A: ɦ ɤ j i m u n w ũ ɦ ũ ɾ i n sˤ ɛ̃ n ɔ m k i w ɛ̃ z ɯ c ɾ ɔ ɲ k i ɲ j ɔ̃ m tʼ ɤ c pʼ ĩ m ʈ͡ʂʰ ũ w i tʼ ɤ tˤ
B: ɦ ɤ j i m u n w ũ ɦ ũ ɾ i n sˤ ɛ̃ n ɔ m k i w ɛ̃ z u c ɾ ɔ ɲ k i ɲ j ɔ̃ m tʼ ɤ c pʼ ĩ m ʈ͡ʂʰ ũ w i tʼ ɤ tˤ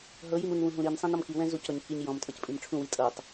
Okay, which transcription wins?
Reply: B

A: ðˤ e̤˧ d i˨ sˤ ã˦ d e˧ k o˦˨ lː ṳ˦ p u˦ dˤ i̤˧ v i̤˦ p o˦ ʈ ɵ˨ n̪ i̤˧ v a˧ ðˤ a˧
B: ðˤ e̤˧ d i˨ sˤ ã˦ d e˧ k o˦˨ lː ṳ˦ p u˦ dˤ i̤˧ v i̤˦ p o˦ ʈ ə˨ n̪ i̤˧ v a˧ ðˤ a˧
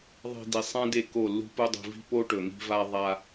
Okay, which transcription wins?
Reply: A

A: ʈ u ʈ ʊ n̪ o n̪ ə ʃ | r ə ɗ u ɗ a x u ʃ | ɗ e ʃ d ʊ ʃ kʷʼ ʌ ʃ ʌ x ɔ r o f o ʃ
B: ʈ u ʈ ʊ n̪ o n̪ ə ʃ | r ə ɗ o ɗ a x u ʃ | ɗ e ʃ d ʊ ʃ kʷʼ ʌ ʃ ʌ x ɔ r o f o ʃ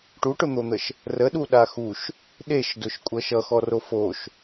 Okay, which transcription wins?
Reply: A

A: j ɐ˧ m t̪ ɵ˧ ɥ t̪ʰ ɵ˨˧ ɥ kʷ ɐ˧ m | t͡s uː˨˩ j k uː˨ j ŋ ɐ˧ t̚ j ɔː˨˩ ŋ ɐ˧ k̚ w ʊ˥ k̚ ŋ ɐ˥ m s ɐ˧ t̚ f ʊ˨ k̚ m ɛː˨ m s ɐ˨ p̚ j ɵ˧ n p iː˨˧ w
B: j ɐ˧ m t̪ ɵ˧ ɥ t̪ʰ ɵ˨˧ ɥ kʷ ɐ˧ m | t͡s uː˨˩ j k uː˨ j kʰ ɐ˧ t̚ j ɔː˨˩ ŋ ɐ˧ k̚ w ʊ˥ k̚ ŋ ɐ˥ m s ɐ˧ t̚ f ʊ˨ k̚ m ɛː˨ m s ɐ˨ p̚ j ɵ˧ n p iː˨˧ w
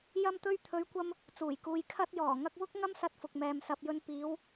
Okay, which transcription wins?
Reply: B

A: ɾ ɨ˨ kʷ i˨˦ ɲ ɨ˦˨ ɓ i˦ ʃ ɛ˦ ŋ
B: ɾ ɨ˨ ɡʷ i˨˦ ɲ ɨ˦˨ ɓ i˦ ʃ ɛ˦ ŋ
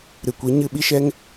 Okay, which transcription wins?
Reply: A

